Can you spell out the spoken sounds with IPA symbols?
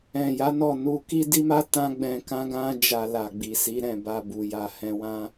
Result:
ɛ̃˨ j a˨˦ n ɔ˦˨ n u˧ k i˦ d i˦ m a˦ t ã˦ ɡ͡b ɛ̃˧ k ã˦ ɡ ã˦ d͡ʒ a˧ l a˨ ɡ͡b i˨ s i˨˦ ɾ ɛ̃˦˨ b a˧ b u˨ j a˨ h ɛ̃˧ w ã˦

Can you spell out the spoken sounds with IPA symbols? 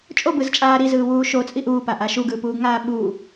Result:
t͡ʃʼ o b ɯ z t͡ʃʼ aː ɾ i z ɯː w uː ʃ o t͡sʼ i ʔ uː p a ʔ a ʃ u ɡ ɯː p uː ɡ ŋ aː ɓ u

